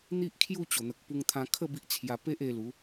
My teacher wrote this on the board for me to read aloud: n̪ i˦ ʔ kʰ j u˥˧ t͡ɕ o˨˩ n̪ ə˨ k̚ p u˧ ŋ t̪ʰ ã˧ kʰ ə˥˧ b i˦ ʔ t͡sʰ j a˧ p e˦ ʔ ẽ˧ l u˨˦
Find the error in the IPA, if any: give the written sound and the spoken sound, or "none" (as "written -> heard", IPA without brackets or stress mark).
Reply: ẽ˧ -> e˧